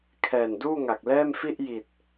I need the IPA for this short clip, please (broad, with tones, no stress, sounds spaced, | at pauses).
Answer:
kʰ ɛː˨˩ n d uː˥˩ ŋ a˨˩ k̚ l ɛː˥˩ m f i˥˩ ʔ j i˨˩ t̚